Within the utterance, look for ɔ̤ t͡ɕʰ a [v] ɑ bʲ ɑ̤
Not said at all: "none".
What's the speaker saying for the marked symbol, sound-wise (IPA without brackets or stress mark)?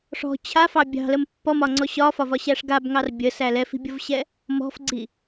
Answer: f